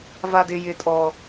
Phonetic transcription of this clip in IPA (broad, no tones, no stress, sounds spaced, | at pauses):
v a d ɪ j ɪ tʼ ɔ